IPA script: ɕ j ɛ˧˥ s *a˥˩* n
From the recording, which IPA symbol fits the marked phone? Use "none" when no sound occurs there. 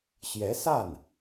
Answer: a˥˩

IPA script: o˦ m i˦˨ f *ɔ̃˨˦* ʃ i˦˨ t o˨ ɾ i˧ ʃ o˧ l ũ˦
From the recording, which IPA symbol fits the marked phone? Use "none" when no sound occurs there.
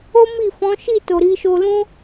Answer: ɔ̃˨˦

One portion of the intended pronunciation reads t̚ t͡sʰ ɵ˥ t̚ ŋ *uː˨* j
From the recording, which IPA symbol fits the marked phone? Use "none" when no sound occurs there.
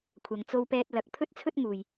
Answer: uː˨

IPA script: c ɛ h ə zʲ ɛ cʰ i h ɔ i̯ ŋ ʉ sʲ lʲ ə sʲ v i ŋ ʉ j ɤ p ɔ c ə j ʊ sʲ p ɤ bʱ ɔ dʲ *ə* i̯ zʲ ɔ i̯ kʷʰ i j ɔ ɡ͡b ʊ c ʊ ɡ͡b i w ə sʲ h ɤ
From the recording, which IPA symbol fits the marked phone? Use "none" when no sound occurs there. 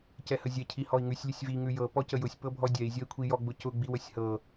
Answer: ɛ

